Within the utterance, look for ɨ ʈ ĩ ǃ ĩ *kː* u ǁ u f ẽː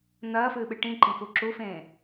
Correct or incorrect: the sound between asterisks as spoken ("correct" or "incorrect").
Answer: incorrect